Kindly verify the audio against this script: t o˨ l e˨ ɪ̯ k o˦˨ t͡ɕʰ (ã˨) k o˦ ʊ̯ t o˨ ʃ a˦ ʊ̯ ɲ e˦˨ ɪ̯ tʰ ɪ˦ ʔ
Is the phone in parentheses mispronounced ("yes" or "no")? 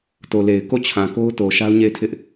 no